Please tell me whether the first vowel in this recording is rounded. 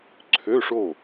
yes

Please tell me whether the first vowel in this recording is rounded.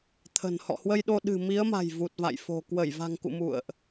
no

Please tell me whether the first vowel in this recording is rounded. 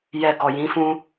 no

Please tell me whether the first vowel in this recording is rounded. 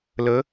no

